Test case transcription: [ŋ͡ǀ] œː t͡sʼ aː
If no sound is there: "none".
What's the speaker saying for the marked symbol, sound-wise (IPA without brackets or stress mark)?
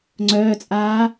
ŋ͡ǀ